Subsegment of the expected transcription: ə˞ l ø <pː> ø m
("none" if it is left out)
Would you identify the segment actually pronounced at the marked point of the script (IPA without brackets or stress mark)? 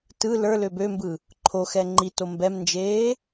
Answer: b